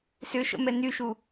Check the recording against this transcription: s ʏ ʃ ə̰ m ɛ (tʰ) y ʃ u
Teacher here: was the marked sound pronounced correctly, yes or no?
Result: no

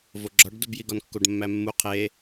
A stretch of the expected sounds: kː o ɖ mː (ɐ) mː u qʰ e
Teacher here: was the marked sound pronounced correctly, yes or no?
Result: no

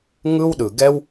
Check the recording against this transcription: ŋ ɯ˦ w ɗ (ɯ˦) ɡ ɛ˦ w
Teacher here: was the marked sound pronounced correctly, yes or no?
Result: no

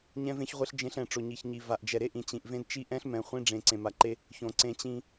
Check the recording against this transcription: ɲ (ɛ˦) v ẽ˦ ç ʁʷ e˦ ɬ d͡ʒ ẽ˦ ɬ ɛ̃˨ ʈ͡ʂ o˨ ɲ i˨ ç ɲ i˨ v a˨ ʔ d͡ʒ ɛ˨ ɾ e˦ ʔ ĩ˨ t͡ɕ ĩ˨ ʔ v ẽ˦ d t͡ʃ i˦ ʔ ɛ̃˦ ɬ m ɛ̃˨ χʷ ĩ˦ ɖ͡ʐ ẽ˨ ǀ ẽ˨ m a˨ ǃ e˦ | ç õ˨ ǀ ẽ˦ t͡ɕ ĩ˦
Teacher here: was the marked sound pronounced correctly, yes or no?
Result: no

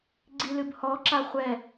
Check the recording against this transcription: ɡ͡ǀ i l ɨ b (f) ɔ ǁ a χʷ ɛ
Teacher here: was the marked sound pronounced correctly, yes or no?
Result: no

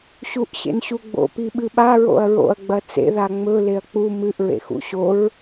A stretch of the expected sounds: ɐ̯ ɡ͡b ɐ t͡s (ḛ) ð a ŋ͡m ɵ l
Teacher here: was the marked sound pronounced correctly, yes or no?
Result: yes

